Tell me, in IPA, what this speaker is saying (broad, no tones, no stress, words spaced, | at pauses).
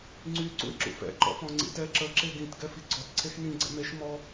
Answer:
ŋ͡ǀy ǀṵɪ̯ǁṵfɛ̰ ǃɔ̰fɔ̃ŋ͡ǀḭtɛ ǁə ǁeɡĩt ɡɛfiɡ͡ǀɔt ǀʰexnĩ ɡ͡ǀɛ̰meʃ mɔ